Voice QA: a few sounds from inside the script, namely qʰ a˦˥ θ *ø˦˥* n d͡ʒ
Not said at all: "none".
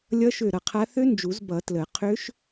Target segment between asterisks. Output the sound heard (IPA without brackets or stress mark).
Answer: ø˦˥